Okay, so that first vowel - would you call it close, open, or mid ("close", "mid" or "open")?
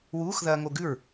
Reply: close